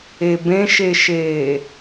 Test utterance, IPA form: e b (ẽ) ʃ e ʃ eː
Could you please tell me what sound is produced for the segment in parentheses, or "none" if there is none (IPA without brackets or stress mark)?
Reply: ẽ